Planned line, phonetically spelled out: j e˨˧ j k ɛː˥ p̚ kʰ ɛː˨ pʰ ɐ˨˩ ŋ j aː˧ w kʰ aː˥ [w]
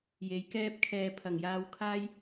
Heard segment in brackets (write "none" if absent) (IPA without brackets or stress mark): j